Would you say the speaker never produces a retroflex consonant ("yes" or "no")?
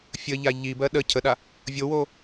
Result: yes